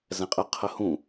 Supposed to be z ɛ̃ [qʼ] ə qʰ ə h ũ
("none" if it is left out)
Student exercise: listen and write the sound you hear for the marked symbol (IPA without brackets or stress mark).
qʼ